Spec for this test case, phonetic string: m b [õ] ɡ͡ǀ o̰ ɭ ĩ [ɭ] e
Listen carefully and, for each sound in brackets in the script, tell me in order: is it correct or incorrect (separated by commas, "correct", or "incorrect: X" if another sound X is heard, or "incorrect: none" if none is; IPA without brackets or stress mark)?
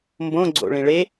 correct, correct